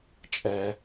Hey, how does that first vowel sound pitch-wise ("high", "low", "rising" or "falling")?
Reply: low